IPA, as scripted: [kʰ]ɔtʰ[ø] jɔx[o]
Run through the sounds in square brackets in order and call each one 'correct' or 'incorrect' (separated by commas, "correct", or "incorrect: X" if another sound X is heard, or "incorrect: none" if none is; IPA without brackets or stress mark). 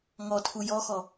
incorrect: ŋ, incorrect: u, incorrect: ɔ